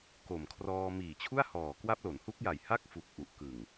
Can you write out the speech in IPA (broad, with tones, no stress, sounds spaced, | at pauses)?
k o˨˩ m kʰ r ɔː˧ m iː˨˩ t͡ɕʰ u˥˩ a̯ h ɔː˨˩ k w a˦˥ p̚ l o˩˦ n h u˦˥ k̚ j a˨˩ j h a˥˩ k̚ f u˨˩ k̚ ʔ u˨˩ ʔ k ɯ˨˩ ŋ